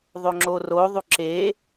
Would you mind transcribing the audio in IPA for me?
ðˤ o ŋ͡ǁ o r o ðˤ u ǁ e

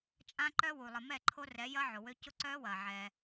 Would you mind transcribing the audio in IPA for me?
t͡ʃʼ ã˦ ǃ œ˦ w u˨ lˠ ə˨ m ɛ˦˨ ǃʰ o˦ r ɛ˨˦ j ɐ˦ ʕ ʊ˨ w ø˦ c ʊ˦ ǀ œː˦ w ɐː˨ ʕ ɛ˦

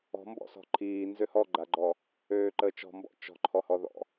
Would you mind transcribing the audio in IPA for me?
ɔ̤ m b ɔ̰ s ɔ̤ ǃʰ iː n z ø h ɔ ɡ͡ǃ a ɡ͡ǃ ɔ | øː ǃ əː t͡ʃ ɔ̤ m b ɔ̰ t͡ʃ ɔ̤ ǃʰ ɔ h ɔ ð ɔ̰

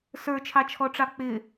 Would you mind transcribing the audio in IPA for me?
s ə˞ t͡ʃʰ ɑ t͡ʃʰ ɔ ʈ͡ʂ ɑ k͡p ɪ

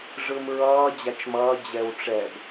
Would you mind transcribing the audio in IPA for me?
ʐ ɯ m ɹ ʌː d͡ʑ a t͡ʃ m ʌː d͡ʑ ɛ w ʈ͡ʂ ɛ b

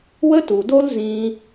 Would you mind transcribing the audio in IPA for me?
w ə˦ t u˨ d o˦ l z ĩ˧

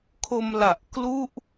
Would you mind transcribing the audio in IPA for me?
kʰ o˧ m l a˨˩ ʔ k l u˥˩ ʔ

